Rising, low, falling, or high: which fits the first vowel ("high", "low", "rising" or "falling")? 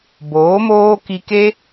rising